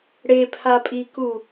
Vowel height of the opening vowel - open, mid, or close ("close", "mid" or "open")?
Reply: mid